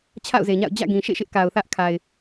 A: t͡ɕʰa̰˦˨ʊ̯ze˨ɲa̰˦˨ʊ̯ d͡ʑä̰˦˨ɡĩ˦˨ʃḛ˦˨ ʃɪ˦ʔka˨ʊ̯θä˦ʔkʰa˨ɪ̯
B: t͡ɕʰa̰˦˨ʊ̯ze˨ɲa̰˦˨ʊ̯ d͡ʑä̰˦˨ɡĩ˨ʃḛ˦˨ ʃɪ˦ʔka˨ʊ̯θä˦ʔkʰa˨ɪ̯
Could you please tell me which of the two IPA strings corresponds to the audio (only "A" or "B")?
B